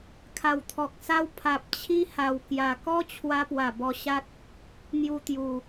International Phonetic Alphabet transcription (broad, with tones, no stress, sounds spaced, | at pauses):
kʰ a˨˩ w t̪ʰ ɔ˨ k̚ s a˦ w pʰ a˨ p̚ t͡ɕʰ i˦ h a˨˩ w k j a˨˩ k ɔ˦ t͡ɕʰ w a˧ p w a˨˩ b ɔ˧ ɕ a˦ t̚ | n̪ j u˧ t̪ j u˨˩